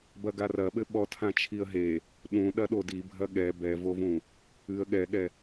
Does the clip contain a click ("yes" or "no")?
no